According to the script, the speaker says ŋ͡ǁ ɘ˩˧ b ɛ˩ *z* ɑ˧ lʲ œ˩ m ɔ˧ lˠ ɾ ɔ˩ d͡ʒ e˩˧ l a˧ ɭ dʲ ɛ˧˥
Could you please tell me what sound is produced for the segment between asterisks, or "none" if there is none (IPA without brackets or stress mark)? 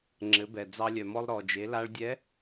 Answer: d͡z